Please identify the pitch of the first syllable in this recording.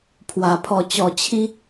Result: low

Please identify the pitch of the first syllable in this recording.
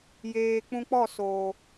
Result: low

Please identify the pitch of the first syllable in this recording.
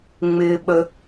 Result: low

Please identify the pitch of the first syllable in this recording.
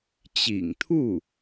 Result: low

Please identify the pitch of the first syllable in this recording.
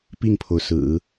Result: falling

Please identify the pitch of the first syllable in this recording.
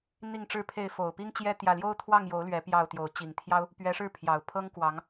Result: falling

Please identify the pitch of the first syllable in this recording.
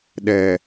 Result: low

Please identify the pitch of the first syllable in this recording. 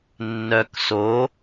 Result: low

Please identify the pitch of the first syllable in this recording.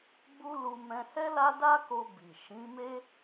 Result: high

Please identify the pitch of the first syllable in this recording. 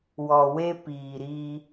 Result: low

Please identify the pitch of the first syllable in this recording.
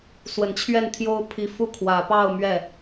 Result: low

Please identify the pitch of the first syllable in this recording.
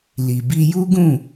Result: low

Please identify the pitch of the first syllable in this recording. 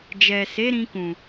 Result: low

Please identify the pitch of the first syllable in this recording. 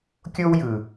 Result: high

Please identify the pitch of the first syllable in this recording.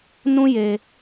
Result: high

